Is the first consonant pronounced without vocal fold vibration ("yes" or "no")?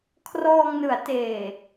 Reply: yes